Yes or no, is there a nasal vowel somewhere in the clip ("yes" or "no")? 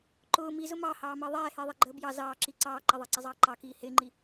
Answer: no